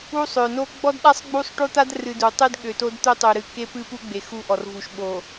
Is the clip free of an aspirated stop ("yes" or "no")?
yes